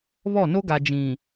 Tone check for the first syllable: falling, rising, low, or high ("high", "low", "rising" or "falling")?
falling